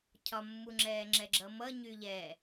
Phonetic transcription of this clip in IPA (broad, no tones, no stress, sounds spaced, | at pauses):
cʰ ɒ mː u ŋ͡ǁ ɛː ŋ͡ǁ ɛ ɡ͡ǁ ʌ m ʌ ɲ y ʎ ɛ